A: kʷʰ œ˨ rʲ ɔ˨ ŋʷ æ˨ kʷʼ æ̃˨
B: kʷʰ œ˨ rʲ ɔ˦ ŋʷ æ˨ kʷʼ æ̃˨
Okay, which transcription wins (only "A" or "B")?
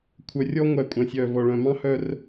B